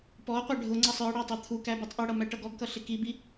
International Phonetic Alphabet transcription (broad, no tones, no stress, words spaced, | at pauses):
pɔqʷɑ ɖʱʊŋ͡ǀʌsˤ ə˞ɽɑ tˤɑt̪ʰukæ butˤʔʊɽʌ mæʈʌɡɔɡkʌ ɬɪkibi